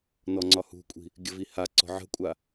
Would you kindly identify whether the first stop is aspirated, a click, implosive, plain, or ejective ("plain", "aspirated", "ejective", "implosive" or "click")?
click